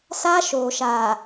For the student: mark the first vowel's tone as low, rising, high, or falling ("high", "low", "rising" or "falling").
high